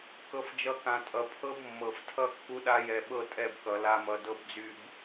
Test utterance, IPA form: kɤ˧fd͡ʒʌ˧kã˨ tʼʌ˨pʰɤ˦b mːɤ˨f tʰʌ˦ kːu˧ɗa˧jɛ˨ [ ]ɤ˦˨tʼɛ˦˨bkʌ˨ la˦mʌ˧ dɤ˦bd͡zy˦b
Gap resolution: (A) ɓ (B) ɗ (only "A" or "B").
A